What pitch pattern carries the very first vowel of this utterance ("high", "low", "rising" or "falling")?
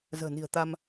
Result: low